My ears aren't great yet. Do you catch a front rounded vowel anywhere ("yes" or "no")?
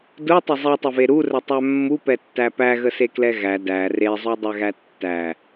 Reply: no